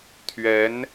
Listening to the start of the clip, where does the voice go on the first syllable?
rising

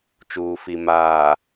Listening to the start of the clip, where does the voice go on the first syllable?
low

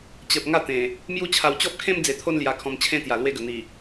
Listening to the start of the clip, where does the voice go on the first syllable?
low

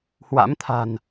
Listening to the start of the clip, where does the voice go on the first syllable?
rising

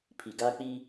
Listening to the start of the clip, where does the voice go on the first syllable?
low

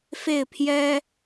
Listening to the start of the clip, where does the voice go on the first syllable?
falling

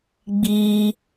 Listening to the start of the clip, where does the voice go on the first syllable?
high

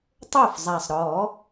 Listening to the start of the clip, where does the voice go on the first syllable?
falling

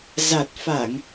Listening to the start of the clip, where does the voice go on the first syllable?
low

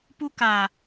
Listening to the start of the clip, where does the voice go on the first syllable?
high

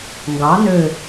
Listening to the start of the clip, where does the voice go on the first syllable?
rising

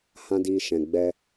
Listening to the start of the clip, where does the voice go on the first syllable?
high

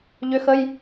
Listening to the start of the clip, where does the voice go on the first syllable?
rising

